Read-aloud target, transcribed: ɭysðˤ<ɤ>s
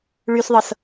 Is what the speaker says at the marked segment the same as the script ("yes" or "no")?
yes